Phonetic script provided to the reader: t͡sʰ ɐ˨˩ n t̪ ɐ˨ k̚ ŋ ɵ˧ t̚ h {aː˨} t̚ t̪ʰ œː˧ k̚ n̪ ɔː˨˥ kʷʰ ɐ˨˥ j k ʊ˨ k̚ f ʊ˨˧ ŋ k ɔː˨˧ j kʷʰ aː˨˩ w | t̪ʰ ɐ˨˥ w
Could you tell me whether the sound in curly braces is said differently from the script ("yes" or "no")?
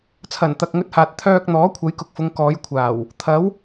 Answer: no